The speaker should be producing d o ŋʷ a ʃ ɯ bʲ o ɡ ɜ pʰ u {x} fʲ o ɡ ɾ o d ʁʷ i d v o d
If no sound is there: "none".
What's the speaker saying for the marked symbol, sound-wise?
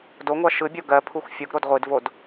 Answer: x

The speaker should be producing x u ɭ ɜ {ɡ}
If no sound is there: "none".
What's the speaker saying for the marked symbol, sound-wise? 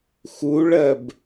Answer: b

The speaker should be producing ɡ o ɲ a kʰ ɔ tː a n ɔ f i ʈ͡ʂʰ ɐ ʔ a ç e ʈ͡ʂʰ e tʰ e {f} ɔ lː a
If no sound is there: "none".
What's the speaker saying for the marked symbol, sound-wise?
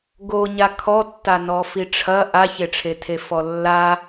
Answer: f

